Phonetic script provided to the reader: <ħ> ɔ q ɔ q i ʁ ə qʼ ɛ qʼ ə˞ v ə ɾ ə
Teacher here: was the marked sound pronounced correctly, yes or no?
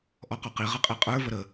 no